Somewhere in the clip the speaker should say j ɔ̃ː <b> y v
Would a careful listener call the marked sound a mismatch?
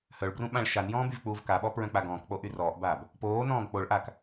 no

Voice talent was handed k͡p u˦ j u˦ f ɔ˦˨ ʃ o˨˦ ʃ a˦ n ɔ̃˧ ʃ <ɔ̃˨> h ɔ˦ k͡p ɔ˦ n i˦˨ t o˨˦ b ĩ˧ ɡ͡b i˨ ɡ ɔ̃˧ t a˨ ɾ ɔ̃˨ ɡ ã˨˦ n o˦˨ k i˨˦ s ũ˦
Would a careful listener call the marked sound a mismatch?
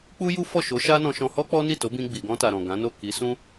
yes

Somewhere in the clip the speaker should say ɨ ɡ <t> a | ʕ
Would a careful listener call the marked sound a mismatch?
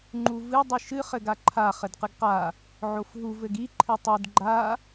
yes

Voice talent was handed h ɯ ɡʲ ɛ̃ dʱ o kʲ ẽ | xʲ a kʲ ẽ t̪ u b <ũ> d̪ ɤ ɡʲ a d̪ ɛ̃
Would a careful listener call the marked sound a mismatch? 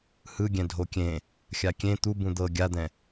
no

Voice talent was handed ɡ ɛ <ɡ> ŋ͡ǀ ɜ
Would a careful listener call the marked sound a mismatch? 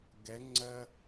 yes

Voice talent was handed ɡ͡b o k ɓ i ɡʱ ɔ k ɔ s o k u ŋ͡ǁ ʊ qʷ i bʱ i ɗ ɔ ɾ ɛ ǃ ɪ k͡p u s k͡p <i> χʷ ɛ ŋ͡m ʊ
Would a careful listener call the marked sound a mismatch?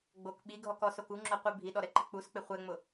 yes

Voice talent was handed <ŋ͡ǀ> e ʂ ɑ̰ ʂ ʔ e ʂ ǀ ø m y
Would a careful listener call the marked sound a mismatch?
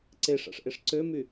yes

